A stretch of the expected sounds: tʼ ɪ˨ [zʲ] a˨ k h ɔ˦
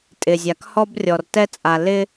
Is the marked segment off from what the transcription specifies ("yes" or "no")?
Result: no